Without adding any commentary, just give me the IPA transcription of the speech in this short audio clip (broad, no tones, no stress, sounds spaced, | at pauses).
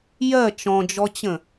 j ɜ t͡ʃ ɔ̃ d͡ʒ ɔ t͡ɕ ə̃